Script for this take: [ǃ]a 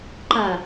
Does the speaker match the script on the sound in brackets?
yes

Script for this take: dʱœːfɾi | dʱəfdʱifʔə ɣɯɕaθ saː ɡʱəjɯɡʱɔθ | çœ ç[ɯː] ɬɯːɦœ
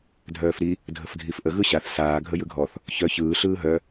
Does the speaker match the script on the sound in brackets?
yes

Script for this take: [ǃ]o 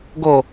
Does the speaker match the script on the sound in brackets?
no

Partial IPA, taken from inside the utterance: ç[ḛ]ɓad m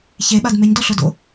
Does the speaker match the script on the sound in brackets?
no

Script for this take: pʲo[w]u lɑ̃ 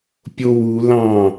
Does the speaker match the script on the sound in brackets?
yes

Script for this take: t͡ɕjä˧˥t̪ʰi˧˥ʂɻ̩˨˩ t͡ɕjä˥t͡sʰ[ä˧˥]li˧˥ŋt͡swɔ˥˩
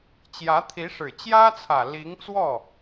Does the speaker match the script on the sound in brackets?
no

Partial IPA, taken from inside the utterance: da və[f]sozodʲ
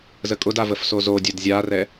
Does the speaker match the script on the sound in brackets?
yes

